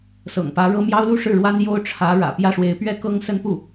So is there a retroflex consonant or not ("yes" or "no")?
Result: yes